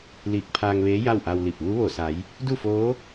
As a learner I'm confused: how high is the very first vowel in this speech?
high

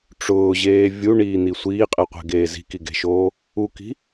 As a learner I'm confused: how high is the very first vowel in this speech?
high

